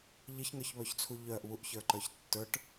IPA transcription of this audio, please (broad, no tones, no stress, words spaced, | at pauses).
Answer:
ʎɪçŋə˞çβœçt͡sʰu ʎœʔβuʔçə˞ǃə˞ç tːə˞ʈ